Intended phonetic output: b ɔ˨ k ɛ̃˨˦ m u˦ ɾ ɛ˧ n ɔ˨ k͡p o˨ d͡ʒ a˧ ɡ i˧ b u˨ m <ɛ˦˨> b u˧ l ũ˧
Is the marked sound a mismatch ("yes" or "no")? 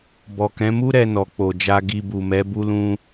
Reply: yes